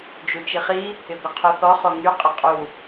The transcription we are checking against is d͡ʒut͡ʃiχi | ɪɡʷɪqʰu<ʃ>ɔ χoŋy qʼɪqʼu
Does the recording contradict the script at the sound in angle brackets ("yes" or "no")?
yes